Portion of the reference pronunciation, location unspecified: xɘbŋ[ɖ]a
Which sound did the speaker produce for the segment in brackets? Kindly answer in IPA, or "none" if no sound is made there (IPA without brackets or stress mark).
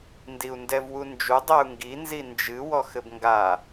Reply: ɡ